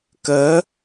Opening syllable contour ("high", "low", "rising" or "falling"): rising